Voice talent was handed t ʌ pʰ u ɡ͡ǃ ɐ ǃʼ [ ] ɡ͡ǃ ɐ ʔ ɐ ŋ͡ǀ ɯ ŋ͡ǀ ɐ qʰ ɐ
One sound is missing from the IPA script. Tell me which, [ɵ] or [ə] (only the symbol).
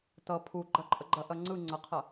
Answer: ə